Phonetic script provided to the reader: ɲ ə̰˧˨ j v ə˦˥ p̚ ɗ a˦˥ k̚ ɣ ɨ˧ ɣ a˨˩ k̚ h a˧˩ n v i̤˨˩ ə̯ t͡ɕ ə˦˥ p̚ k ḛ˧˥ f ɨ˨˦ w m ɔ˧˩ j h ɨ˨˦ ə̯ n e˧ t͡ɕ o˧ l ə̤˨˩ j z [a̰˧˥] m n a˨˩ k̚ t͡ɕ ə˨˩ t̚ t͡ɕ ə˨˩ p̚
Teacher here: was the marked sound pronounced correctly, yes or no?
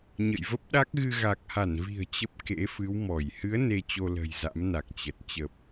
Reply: yes